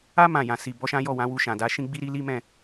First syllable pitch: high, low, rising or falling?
high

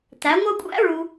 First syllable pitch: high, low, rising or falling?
rising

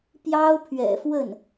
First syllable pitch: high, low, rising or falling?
high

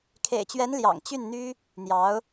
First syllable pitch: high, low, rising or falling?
low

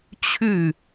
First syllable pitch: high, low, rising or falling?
falling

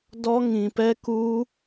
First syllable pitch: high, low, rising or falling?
high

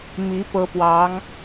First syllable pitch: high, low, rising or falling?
rising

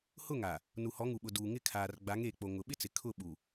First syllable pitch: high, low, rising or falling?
falling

